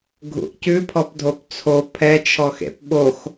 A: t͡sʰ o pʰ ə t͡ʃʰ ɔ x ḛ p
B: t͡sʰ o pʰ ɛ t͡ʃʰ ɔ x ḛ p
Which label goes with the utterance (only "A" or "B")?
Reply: B